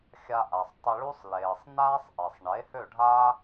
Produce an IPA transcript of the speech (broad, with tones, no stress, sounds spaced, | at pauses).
xʲ a˧ ʔ a˩ sˤ tˤ ə˧ ɭ u˥ sˤ l eː˩ sˤ n aː˥ sˤ ʔ e˩ sˤ ɳ e˩˥ h ø˥˩ ɖʱ aː˥